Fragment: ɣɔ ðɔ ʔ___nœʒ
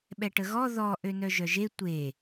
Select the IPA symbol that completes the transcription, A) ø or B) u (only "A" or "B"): A